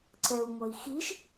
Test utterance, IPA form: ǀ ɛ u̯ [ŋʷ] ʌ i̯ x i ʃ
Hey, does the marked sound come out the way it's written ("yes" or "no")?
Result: yes